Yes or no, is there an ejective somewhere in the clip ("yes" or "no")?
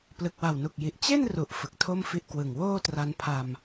no